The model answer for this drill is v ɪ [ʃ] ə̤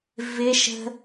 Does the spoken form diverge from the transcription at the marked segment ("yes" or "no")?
no